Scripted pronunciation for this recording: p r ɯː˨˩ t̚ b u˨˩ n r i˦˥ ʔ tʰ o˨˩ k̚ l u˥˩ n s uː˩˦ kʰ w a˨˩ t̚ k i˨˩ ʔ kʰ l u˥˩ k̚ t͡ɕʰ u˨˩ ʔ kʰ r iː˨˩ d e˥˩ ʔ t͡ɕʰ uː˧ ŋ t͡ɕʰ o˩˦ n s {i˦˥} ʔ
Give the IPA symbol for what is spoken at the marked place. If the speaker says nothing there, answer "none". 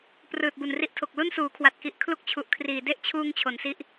i˦˥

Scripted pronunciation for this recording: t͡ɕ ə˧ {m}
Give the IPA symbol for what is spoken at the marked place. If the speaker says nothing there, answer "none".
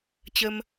m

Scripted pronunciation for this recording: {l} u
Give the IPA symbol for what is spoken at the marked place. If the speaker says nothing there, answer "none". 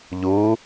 ʎ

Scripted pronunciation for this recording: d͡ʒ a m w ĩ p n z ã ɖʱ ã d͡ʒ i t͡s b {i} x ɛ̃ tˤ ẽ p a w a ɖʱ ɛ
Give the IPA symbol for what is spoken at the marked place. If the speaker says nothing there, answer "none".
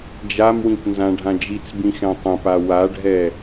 ĩ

